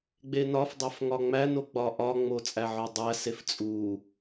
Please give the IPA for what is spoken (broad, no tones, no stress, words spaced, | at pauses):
ɡ͡benɒfdˤæf ŋɒŋ͡mæno ɡ͡bɒʔɒŋ͡mo t͡sʼæʕɒdˤæsef t͡sʼu